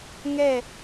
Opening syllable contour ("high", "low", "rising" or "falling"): falling